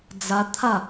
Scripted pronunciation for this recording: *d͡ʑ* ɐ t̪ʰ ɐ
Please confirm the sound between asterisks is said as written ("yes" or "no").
no